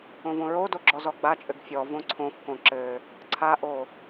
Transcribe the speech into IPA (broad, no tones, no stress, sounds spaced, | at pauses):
õ v õ ɹ o d o ɡ͡ǁ ɔ z ɔ ɡ͡b a t͡ʃʼ ɘ ɡ fʲ ɔ v õ ǀʰ õ f k õ ǁ ɘ | ǀʰ a ʔ o